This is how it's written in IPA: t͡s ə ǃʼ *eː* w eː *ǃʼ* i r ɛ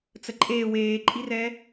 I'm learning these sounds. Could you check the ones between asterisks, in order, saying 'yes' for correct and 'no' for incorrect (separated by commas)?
yes, yes